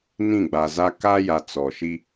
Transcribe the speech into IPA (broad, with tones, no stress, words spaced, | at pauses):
nĩ˦˨ɡ͡ba˨za˦ ka˦ja˨ t͡sɔ˨ʃi˦